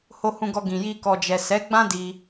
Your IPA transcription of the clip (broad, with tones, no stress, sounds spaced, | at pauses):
h o˧ h ũ˧ ɡ ɔ˧ ɡ ĩ˨ j i˧ k ɔ˨ d͡ʒ ɛ˨ s ɛ˨˦ ɡ͡b ã˦ d i˧